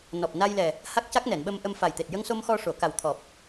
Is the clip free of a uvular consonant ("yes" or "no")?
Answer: yes